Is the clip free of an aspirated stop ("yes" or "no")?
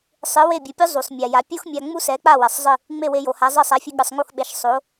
yes